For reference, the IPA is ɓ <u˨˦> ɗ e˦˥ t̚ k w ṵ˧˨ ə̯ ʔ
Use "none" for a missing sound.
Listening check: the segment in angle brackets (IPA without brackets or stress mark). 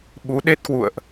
u˨˦